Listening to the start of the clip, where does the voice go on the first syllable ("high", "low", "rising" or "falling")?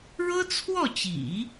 high